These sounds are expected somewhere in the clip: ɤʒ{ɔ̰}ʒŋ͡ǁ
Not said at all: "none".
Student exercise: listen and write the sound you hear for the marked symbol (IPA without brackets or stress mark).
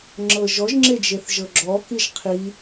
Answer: ɔ